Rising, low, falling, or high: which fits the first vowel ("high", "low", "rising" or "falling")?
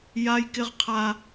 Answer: high